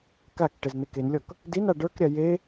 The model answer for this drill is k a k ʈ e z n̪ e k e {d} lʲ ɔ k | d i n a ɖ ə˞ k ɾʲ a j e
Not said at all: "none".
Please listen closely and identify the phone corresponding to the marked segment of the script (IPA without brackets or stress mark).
n